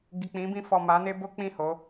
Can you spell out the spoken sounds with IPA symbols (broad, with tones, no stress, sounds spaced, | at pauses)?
ɡ i˨ k͡p ĩ˨˦ b ĩ˧ f ɔ˨ m a˨˦ n e˦ b o˦ k͡p ĩ˦˨ h o˨˦